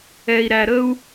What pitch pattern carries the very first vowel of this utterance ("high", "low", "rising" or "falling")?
low